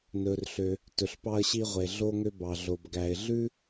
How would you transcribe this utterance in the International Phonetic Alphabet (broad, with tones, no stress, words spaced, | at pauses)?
nɵ˩rɬø˩ | tɵ˩ɬpɑ˧ə̯ɕi˧ʁʷe˩ ɮo˧ ŋø˧bɑ˩ ɮo˩b ɡæ˩ɪ̯ɮʉ˥